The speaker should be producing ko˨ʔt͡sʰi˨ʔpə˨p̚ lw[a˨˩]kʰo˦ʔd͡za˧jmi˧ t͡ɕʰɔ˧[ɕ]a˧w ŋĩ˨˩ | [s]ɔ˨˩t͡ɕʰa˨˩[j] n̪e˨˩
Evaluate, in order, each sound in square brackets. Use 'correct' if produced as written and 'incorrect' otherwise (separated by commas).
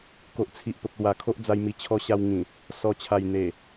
correct, correct, correct, correct